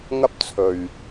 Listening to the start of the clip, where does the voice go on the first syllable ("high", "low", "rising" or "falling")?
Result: high